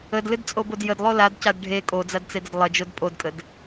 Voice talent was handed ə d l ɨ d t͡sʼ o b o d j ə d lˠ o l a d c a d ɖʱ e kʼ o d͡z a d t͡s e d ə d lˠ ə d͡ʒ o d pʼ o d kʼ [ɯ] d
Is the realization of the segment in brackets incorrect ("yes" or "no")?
yes